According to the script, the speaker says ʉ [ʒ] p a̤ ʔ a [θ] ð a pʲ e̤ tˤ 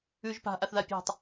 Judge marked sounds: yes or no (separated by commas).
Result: yes, yes